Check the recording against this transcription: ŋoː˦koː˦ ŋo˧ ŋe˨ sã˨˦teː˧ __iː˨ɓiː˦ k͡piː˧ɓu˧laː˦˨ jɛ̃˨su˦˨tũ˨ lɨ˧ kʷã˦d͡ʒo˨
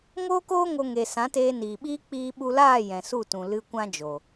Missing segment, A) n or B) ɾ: A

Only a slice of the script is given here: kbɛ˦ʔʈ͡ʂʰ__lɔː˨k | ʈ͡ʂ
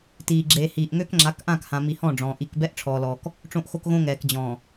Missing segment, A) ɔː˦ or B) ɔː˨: B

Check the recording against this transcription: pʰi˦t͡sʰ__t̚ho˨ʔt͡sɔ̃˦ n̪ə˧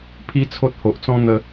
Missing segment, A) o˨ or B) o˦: B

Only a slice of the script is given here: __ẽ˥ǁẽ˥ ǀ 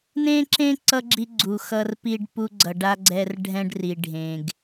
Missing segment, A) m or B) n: B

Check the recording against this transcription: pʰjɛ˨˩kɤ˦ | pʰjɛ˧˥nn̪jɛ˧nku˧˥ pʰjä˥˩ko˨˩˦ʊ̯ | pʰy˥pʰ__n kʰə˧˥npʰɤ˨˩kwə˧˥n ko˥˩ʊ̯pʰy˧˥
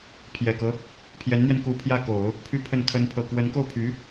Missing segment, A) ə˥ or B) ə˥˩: B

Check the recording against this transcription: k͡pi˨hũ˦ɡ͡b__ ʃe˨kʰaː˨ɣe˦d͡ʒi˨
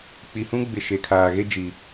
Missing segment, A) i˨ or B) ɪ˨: B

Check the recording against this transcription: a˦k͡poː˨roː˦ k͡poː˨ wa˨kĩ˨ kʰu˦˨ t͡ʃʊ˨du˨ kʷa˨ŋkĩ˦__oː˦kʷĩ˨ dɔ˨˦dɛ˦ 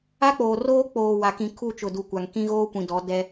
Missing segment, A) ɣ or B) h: A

